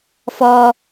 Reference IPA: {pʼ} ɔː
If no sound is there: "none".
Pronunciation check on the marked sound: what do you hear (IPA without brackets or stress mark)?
f